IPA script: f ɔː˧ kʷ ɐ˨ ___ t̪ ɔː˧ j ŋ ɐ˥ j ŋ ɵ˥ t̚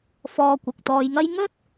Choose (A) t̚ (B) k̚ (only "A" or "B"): B